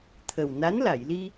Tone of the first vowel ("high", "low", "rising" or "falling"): low